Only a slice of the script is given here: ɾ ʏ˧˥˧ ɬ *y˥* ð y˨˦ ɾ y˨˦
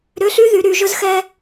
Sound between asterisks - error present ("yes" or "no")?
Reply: no